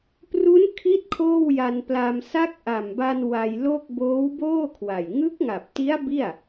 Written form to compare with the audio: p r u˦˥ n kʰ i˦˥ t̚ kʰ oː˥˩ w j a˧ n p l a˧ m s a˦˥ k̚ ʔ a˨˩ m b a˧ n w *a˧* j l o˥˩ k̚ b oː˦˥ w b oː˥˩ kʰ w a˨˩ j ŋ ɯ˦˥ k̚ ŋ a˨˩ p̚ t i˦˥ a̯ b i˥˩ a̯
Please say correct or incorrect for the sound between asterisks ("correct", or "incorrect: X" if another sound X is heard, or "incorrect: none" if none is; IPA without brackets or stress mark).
correct